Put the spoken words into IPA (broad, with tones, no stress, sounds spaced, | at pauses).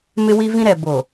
m ɪ˦ w i˦ v ĩ˦ ɾ ɛ˨ b o˨